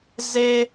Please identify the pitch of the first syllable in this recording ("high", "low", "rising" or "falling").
high